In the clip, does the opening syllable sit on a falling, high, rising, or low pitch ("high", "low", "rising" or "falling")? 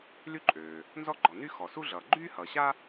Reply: high